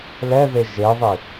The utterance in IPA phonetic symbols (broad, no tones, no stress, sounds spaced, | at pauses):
l ɛ ð e ʒ e ðˤ i